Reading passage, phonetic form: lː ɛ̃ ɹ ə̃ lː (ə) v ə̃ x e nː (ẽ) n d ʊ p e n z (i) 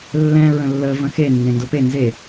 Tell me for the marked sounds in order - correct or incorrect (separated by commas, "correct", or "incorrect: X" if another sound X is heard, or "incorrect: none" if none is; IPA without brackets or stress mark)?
correct, correct, incorrect: e